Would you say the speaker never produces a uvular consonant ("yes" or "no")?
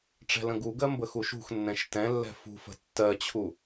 yes